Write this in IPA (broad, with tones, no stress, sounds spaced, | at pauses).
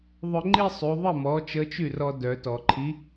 ðˤ œ˧ ŋ͡ǃ i˥˧ sˤ y˩˧ ðˤ ə˥˩ m ɔ˩˧ t͡ʃ ə˨˥ t͡ʃ y˥˩ r ɔ˧ d œ˩˧ t ɔ˩ ǃʰ i˨˥